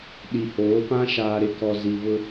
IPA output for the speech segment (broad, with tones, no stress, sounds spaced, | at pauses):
ɗ i˨ h oː˨˦ p ã˦ ʃ aː˨ ɾ ɪ˨ k ɔ˨ z i˨ β ʊ˦